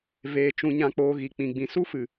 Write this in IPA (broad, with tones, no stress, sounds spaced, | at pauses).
v eː˨ t͡ʃ ũ˨ ɲ ã˨ k͡p oː˨ ɣ i˨ k͡p ĩ˨ ɡ͡b ĩ˨ s u˦ f ɨ˨